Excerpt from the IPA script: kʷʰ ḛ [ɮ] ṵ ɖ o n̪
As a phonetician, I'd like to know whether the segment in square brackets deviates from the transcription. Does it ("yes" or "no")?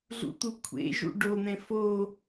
yes